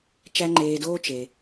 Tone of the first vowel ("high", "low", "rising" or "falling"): high